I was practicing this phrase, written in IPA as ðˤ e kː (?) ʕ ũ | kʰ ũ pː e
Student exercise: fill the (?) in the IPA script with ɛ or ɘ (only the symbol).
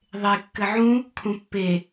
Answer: ɘ